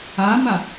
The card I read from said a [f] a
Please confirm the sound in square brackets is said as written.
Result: no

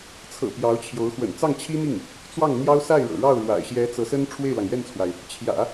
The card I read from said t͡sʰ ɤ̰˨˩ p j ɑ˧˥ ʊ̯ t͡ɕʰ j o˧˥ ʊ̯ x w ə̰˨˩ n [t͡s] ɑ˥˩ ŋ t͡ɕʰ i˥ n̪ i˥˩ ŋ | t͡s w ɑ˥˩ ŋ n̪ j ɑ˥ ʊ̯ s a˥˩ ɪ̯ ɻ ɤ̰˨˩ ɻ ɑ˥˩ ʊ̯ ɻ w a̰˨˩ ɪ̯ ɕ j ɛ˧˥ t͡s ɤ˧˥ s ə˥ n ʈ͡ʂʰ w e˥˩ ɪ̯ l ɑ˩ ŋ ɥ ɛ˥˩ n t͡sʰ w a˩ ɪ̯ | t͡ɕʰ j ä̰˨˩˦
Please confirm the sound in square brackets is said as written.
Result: yes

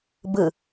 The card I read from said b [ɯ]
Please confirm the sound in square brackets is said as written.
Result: yes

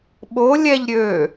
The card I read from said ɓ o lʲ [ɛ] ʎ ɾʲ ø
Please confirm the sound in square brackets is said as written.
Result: yes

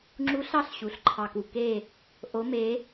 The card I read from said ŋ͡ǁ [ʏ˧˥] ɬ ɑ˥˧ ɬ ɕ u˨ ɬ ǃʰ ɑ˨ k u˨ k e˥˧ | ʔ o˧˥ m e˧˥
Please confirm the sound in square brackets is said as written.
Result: no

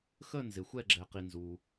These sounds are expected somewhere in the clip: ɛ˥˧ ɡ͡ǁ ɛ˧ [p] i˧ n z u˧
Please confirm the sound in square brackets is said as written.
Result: no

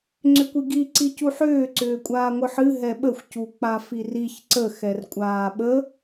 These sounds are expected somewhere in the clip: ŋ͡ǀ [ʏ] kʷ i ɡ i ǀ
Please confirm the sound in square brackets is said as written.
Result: yes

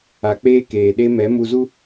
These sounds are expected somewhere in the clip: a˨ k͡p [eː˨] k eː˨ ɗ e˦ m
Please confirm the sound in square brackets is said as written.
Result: no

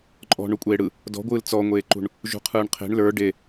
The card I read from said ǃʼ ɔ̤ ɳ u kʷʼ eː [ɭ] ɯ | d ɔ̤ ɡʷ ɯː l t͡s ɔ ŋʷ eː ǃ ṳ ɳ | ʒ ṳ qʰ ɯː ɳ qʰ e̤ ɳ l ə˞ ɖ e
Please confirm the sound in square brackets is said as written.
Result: no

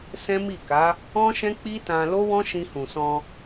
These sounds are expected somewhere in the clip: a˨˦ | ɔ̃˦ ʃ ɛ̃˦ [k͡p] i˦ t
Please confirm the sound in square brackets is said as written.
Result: yes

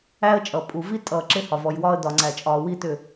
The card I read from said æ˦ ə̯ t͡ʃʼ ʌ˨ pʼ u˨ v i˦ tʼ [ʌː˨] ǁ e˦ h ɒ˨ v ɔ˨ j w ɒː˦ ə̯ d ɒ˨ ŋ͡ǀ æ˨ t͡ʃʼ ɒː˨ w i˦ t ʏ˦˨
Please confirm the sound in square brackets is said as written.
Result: yes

